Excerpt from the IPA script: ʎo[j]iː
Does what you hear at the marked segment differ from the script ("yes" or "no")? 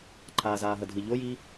no